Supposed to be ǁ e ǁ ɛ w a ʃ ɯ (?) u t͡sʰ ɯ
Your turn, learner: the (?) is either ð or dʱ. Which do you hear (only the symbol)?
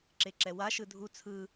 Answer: dʱ